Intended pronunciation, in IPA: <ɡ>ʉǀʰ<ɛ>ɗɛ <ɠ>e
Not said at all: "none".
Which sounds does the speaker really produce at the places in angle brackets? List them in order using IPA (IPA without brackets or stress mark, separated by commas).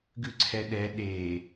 ɡ, ɛ, ɗ